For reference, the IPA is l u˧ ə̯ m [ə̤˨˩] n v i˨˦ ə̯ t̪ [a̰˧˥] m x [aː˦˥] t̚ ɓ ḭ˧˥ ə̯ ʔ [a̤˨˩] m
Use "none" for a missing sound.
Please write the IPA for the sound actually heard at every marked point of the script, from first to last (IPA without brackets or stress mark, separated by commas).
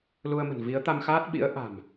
ə̤˨˩, a˧, aː˦˥, a̤˨˩